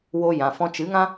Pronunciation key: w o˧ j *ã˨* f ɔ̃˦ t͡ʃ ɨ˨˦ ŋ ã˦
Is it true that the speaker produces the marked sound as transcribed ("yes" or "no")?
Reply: yes